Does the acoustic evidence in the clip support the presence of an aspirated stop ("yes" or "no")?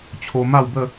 yes